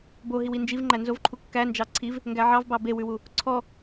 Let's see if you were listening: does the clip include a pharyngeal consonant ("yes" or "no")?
yes